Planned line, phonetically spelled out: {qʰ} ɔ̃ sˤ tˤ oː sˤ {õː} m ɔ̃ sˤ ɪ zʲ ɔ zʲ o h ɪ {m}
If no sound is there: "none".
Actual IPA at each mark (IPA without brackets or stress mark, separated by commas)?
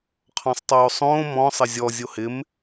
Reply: qʰ, õː, m